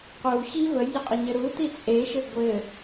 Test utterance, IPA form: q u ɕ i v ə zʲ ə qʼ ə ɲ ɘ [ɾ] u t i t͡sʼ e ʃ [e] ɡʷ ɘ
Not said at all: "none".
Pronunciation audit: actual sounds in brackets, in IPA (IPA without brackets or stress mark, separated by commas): ɾ, ɘ